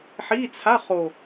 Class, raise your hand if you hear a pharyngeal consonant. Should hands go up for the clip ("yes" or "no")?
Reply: yes